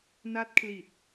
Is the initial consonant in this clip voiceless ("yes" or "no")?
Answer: no